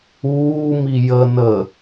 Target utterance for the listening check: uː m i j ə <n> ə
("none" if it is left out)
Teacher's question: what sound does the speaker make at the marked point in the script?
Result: n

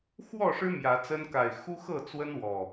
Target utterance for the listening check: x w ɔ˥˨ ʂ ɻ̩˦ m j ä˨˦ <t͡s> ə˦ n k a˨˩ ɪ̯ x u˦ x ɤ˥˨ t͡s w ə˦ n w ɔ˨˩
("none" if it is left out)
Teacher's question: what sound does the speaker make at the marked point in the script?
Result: t͡s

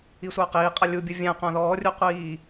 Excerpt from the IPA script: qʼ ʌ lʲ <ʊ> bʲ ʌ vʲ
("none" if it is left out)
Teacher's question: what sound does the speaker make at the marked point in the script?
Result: u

